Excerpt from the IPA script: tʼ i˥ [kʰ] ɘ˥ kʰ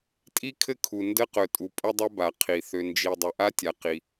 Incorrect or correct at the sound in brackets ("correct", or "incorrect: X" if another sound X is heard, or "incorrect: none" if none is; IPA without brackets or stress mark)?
correct